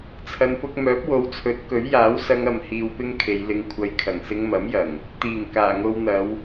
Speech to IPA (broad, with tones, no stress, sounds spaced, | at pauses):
t͡sʰ ɐ˧ n p ʊ˥ k̚ m œː˨˥ p̚ w o˨˧ w t͡sʰ ɵ˨˥ t̚ k ɵ˨˥ ɥ j aː˨˥ w s ɐ˧ ŋ ɐ˨ m h iː˧ w p ɪ˥ ŋ kʰ e˨˧ j l ɪ˧ ŋ kʷʰ ɐ˧ j kʰ ɐ˨˩ ŋ s ɪ˧ ŋ m ɐ˨˥ m j ɐ˨˩ ŋ | t̪ iː˨˩ ŋ k aː˨˩ ŋ o˧ w n̪ ɐ˨˧ w